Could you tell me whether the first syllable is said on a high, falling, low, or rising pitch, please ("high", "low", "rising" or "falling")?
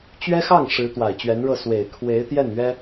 high